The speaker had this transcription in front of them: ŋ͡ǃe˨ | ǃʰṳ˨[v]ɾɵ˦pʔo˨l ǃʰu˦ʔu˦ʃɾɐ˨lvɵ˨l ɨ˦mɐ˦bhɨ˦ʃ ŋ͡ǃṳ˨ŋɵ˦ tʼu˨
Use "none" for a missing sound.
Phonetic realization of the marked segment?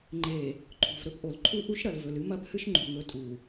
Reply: v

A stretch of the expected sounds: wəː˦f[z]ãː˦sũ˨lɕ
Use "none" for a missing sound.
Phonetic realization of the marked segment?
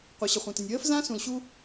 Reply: z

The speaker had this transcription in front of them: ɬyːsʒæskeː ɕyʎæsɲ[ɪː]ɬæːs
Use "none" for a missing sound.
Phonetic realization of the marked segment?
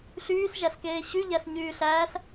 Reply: yː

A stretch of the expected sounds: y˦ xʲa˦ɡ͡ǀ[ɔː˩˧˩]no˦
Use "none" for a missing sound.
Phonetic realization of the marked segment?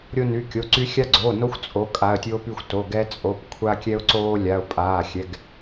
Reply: oː˩˧˩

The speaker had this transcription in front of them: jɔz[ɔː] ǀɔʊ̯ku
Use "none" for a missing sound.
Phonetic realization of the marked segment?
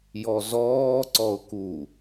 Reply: ɔː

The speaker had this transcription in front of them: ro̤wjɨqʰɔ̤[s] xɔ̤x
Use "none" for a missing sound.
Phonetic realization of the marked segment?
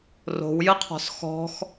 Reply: s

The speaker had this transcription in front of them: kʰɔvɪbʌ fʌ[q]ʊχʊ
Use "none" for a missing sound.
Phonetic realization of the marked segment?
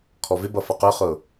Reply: q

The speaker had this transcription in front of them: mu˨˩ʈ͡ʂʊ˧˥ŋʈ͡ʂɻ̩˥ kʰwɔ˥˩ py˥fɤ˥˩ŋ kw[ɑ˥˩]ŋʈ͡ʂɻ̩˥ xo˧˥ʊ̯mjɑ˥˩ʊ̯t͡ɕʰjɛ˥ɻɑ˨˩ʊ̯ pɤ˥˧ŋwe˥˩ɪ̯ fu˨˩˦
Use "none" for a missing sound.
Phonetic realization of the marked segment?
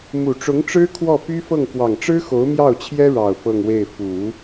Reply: ɑ˨˩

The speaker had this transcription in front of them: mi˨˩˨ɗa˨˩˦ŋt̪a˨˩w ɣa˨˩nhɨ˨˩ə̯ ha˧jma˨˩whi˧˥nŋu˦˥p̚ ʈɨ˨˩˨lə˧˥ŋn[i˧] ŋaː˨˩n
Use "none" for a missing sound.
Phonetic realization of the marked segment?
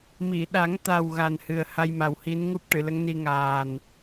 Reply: i˧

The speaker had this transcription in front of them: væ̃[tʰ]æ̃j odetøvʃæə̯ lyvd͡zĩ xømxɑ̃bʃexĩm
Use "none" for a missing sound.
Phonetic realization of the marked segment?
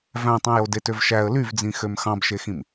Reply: tˤ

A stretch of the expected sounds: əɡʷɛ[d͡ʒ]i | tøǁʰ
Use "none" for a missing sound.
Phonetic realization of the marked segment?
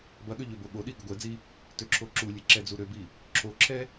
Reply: d͡z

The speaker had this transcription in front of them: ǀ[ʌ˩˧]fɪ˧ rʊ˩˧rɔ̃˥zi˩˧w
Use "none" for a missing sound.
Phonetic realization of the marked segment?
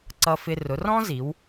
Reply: ʌ˧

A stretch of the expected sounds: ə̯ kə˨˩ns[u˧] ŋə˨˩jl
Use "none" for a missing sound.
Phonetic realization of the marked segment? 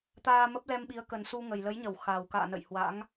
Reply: u˧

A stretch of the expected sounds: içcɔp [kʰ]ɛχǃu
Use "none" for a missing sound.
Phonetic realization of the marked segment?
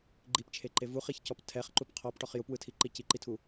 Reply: tʰ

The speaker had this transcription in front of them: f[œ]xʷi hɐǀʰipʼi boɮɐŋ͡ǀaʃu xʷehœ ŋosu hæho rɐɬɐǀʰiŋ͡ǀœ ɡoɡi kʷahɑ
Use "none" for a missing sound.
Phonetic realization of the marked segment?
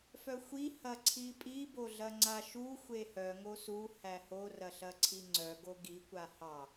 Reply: œ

